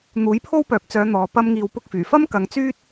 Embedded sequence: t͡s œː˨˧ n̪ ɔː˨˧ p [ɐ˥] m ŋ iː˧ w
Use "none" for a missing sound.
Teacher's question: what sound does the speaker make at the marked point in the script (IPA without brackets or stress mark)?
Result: ɐ˥